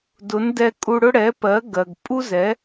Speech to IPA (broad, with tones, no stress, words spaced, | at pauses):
dʊ˩˥n dɛ˧kʼu˧ɽʊ˥ ɽɛ˩˥pɜ˩˥ ɡɜ˩ɡ pʼu˥zɛ˩˥